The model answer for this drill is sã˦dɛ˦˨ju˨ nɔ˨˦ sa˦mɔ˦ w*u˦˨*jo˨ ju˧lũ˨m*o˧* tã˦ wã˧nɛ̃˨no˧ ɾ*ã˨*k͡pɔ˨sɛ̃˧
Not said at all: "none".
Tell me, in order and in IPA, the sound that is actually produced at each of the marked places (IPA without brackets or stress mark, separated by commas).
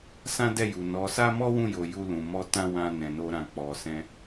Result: ũ˦˨, ɔ˧, ã˨